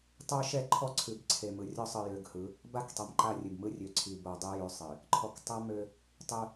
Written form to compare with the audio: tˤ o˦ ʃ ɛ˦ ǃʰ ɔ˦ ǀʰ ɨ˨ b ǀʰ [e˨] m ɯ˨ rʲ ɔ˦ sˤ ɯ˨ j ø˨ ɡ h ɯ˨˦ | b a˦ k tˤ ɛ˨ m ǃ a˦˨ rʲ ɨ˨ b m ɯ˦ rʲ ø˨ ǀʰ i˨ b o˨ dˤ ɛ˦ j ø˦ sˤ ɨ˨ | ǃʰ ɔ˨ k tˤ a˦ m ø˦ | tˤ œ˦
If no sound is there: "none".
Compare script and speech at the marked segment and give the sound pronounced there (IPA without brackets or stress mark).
e˨